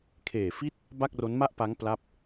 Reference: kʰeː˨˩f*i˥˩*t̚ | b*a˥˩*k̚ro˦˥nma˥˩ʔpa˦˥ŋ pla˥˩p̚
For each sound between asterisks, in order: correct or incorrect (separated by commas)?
correct, correct